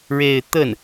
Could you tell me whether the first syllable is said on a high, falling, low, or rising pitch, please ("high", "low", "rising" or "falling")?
falling